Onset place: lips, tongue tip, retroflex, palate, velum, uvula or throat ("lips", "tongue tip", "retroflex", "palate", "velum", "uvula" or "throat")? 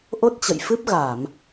throat